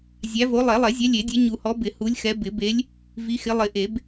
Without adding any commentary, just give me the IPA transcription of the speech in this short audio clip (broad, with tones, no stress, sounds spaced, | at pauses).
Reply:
zʲ æ˨˦ v o˨˦ lˠ ɛ˨˩˦ lˠ ɛ˨˩˦ zʲ ɛ˨˦ lʲ e˨˩˦ dʲ ɛ˨˦ ɲ u˨˩˦ h ɔ˨˦ b ɪ˨˩˦ h u˨˦ lʲ x ɛ˨˦ b ɪ˨˩˦ b e˨˦ lʲ | v i˨˦ x ɪ˨˦ lˠ ɪ˨˩˦ ʔ e˨˩˦ b